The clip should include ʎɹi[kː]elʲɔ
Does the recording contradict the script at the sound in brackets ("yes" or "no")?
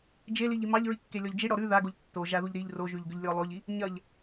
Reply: no